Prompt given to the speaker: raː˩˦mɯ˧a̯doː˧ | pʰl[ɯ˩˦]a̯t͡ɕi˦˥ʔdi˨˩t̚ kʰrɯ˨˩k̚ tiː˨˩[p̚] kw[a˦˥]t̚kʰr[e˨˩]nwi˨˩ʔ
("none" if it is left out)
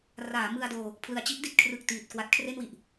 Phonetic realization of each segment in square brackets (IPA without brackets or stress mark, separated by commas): ɯ˩˦, t̚, a˦˥, e˥˩